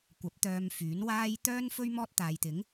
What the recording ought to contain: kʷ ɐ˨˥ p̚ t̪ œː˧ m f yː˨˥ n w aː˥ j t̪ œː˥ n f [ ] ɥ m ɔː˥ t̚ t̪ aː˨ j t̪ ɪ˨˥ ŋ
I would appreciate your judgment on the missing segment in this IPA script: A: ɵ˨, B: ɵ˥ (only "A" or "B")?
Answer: B